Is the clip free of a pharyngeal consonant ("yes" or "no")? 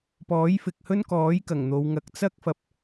yes